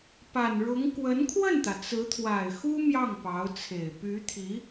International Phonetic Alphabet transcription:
p a˨˩ n ɻ ʊ˧˥ ŋ k w ə˧˥ n kʰ w ə˥˩ n t̪ ä˩ t͡s ɹ̩˧˥ t̪ʰ w a˨˩ ɪ̯ x u˥ m j ɑ˥˩ ŋ p ɑ˧˥ ʊ̯ t͡sʰ e˨˩ ɪ̯ p y˧˥ t̪ʰ i˧˥

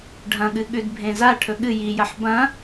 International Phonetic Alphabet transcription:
ɖʱ ɐ̃ ɠ ɨ ɠ ʉ d bʱ ẽ z a ʈʰ ɵ ɠ ɨ j i j ɐ ħ b ɐ̃

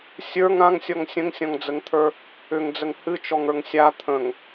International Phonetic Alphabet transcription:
sʲ ə˞ ŋ ã ŋ sʲ ɔ ŋ sʲ ə̃ ŋ sʲ ɔ̃ ŋ d͡z ə ŋ t̪ʰ ə˞ | ʏ ŋ d͡z ə ŋ h ɨ t͡ʃ ɔ ŋ ə˞ ŋ sʲ a t̪ʰ ə̃ ŋ

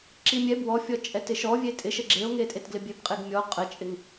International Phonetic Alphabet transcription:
ǁ i mʲ ɛ b w ɔ fʲ ɔ t͡ʃʼ ɛ t ɪ ʃ ɔ vʲ e tʼ ɪ ʃ ə ɡ͡ǁ e o̯ ŋ e tʼ e t ɡ l ɪ bʲ e b qʼ e ɡ mʲ ɔ qʼ ə t͡ʃʼ ɪ ŋ

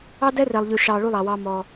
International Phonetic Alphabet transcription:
ɑ˦ d ɛ˦ r ɛ˨ lˠ ʎ ʉ˨ ʃ ɑ˨ ɭ u˦ lˠ ɑ˨ w ɑ˦ m ɔ˦

